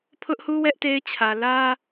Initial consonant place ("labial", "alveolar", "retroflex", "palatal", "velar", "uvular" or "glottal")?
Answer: labial